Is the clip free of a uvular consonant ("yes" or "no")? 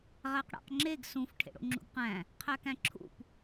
no